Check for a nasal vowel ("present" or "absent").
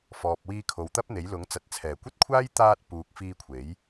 absent